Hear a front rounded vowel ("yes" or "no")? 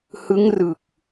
no